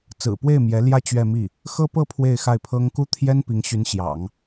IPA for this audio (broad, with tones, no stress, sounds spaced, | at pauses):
t͡s ɹ̩˨˩ p w e˥˩ ɪ̯ m j ɛ˧˥ l j ä˥˧ t͡ɕ ɥ ɛ˥˧ m i˥˩ | x ɤ˥ p ɤ˥˧ pʰ w e˥˧ ɪ̯ x a˥˩ ɪ̯ pʰ ɤ˥ ŋ k u˥ t̪ʰ j ɛ˥ n p i˧˥ ŋ ɕ y˧˥ n ɕ j ɑ̰˨˩˦ ŋ